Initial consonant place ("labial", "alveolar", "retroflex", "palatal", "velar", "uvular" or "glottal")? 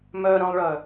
labial